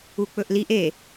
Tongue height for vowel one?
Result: high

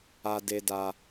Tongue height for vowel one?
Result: low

